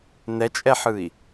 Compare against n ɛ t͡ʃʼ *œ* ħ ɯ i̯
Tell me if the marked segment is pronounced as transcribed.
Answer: no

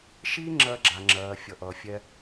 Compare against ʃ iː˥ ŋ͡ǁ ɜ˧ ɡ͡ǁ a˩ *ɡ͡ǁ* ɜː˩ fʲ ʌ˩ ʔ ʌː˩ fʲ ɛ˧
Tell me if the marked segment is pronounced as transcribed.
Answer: no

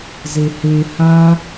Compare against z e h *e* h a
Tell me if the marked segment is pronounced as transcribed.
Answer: yes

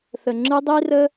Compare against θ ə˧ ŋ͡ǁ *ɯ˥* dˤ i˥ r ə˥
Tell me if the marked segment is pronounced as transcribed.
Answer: yes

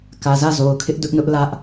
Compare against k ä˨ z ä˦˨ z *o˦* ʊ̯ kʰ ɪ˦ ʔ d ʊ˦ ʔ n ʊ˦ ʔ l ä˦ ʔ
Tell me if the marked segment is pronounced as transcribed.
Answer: no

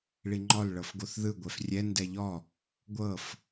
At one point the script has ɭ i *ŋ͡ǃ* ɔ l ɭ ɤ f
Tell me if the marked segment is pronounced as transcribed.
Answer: yes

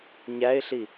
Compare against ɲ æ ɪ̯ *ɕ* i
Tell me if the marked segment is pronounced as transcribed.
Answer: no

